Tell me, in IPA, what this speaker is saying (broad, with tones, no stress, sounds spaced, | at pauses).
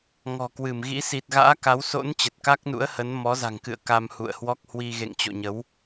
ŋ ɔ̤˨˩ k w ɨ˧˩ m ɣ ḭ˧˥ s i˨˩ t̚ ɣ a̰ː˧˥ k a˨˦ w s o̰˧˥ n t͡ɕ ə˨˩ t̚ k a˦˥ k̚ n ṵ˧˥ ə̯ h ə˨˦ n m ɔ˨˦ z a̤˨˩ ŋ k ɨ̰˧˨ ə̯ k a˧ m h ṵ˧˨ ə̯ h w ɔ˦˥ k̚ h w i˧ ɣ ḛ˧˨ ŋ t͡ɕ o̰˧˨ ɲ ə˨˦ w